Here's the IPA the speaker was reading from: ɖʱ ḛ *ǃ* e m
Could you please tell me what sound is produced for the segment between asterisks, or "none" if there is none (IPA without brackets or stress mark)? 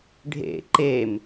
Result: ǃ